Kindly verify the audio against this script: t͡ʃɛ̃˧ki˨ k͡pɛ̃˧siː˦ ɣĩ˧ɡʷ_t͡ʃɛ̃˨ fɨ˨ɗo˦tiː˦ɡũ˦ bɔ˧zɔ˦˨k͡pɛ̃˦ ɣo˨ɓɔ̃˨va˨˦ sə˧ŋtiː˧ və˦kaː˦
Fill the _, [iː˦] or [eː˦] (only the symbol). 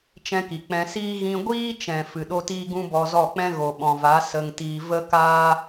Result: iː˦